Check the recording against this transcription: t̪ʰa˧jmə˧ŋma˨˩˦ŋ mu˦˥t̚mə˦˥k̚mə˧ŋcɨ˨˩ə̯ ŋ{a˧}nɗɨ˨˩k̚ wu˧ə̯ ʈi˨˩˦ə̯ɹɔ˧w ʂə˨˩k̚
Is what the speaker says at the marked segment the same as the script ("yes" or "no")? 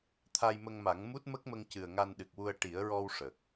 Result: yes